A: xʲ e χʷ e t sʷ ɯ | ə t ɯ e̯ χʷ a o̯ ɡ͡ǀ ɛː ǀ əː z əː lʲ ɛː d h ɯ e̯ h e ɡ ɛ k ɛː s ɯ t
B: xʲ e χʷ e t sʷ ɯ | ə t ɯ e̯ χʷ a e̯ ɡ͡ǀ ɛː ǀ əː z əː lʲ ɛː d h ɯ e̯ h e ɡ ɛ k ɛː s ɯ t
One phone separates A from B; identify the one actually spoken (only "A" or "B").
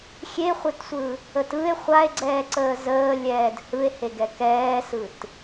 B